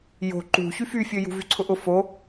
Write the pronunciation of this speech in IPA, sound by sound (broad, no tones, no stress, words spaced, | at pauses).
jo̤ ǃṳ çyfyfʲø jṳvyǀʰʊʔʊ fo